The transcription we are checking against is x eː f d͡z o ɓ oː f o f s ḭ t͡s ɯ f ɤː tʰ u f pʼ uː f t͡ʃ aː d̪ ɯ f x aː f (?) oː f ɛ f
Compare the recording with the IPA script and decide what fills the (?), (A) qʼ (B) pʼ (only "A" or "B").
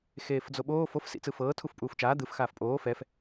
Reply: B